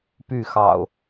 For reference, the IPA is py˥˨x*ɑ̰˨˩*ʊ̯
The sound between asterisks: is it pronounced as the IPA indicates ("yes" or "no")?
yes